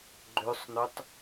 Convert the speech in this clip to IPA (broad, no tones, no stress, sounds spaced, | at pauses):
ɡ͡ǃ ø sˤ n ø tˤ